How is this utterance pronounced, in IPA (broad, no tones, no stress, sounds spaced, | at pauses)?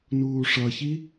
n uː ʂ ʌ ç i